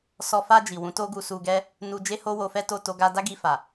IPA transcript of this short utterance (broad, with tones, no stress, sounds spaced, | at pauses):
s ɔ˨ f a˧ d͡ʒ i˨ w ũ˨˦ t o˦ ɡ u˧ s u˧ ɡ ɛ˦ | n u˧ d͡ʒ e˦ h o˦ w o˧ f ɛ˦ t o˦˨ t o˧ ɡ a˧ d a˦ ɡ i˧ f a˨